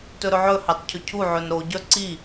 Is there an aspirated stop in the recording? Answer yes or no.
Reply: yes